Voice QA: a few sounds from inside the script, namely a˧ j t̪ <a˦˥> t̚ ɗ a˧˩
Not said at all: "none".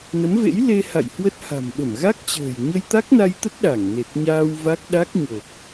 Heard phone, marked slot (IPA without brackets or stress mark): ə˦˥